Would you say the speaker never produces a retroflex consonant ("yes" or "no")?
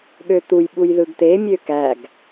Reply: yes